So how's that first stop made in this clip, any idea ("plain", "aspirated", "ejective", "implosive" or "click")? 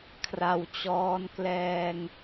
aspirated